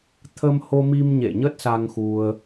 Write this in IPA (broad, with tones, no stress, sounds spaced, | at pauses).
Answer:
t̪ʰ ə˧ m h o˧ m i˧ m ɲ ḛ˧˨ ɲ ə˦˥ t̚ s a˧ ŋ x u˧ ə̯